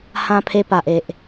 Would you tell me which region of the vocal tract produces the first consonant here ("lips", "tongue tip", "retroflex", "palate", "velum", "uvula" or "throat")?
throat